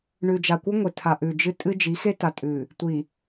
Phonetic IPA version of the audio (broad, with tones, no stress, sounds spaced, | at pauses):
ɳ ʉ˨ d͡ʒ a˨ kʷ ɨ˦ ŋʷ e˨ tʰ a˨ ʔ ʉ˨ d͡ʒ ɨ˦ tʼ ɨ˦ d͡ʒ i˨˦ x e˦ t a˨ tʼ ʉ˨ | tʷ i˨